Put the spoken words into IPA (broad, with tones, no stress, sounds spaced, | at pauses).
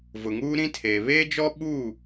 v ʊ˨ ŋ uː˦ ɾ ĩ˦ tʰ eː˨ β eː˦ d͡ʒ ɔ˦ ɓ u˦˨